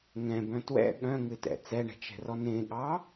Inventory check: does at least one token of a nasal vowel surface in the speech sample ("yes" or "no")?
yes